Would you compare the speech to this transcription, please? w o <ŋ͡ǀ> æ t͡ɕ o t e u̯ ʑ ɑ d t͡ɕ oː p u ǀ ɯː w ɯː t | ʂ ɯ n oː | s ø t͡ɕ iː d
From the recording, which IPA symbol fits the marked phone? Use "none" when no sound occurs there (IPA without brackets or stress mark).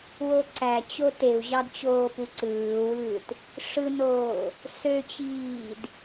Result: ǀ